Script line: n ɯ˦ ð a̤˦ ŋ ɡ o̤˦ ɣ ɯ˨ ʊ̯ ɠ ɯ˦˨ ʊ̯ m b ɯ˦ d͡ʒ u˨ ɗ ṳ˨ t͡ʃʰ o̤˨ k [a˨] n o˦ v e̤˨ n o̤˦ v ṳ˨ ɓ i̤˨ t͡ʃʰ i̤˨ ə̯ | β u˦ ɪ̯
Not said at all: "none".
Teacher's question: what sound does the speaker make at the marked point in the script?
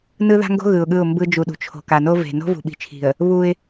a˨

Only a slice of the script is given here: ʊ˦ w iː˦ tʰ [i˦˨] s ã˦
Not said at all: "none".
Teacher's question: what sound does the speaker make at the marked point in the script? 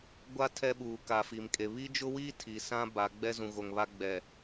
i˨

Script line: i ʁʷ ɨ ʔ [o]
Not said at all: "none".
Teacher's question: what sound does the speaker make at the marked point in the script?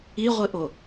o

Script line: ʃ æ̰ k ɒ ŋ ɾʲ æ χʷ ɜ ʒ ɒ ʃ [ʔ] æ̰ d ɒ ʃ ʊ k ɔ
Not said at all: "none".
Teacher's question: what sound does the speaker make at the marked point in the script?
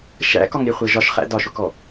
χ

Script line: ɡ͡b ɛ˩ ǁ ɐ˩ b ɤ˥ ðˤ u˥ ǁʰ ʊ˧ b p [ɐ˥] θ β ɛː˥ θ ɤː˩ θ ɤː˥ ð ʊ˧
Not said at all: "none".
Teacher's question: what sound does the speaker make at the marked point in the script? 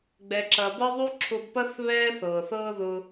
ɐ˥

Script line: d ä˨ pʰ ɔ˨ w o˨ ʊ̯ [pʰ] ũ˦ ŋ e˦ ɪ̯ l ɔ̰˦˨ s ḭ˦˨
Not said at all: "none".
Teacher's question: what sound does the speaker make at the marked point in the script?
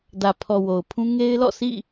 pʰ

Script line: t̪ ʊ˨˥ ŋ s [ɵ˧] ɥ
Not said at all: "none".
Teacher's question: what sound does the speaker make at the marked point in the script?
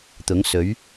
ɵ˨˥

